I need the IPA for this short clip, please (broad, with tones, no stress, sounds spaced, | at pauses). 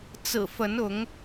t͡s ɹ̩˨˩ f ə˨˦ n ʊ˨˦ ŋ